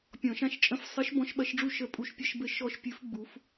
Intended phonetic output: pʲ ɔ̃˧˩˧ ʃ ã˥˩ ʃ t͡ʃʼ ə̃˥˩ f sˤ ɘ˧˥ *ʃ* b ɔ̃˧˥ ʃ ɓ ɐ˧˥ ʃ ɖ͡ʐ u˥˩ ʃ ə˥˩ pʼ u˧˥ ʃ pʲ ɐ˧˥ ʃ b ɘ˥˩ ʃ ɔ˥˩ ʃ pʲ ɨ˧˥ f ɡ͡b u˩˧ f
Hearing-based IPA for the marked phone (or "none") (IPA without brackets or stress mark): ʃ